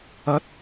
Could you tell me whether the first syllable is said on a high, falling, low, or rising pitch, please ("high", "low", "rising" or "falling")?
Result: rising